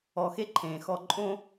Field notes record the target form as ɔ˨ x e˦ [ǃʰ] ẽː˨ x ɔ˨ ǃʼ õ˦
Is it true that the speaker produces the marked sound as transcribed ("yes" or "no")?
yes